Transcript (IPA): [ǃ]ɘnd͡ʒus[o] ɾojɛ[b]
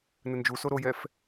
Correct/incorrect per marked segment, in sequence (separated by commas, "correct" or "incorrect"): incorrect, correct, incorrect